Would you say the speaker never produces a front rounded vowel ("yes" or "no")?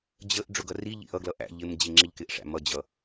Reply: yes